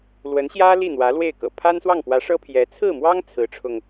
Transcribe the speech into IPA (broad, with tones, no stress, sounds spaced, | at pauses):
l w ə˧˥ n ɕ j ä˥ l i˥˩ n̪ w ä˧˥ l w e˥˩ ɪ̯ k ɤ̰˨˩ pʰ a˥ n s w ɑ˥˩ ŋ p w ä˧˥ ʂ ɤ˥ pʰ j ɛ˧˥ t͡sʰ ɹ̩˥˩ m w ɑ˥ ŋ t͡sʰ ɹ̩˧˥ ʈ͡ʂʰ ʊ˧ ŋ